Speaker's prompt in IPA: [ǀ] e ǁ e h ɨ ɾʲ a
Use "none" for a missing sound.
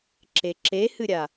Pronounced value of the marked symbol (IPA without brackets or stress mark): ǁ